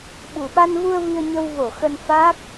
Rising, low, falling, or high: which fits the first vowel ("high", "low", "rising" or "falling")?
low